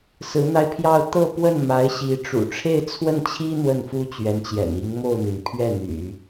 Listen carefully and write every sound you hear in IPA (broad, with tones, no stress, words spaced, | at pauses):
sɹ̩˧˥n̪a˧ɪ̯pʰjɑ˥˧ʊ̯ t̪ɤ˥˧pwə˥˩nma˧˥ɪ̯ ɕi˧˥ ʈ͡ʂṵ˨˩ʈ͡ʂʰe˥˧ɪ̯t͡sʰwə˥˩nt͡ɕʰi˥ n̪wə˥˩nfu˥t͡ɕɥɛ˧˥nt͡ɕjɛ̰˨˩n i˧˥ŋ mo˥˩ʊ̯n̪i˩n pʰɥɛ˥˩n̪y̰˨˩˦